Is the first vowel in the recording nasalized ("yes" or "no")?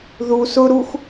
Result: no